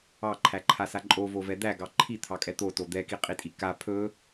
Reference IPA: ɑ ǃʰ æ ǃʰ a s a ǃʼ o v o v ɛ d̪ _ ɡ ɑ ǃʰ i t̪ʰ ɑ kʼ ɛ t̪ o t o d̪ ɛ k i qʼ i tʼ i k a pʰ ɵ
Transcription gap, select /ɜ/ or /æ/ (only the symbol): æ